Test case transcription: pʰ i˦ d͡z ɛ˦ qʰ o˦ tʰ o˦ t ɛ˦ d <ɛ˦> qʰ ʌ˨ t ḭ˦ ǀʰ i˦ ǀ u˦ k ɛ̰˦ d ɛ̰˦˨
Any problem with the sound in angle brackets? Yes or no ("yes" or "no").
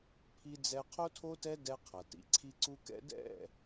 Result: no